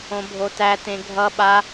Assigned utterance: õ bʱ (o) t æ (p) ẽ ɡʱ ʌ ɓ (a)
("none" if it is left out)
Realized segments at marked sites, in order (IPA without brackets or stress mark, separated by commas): o, t, a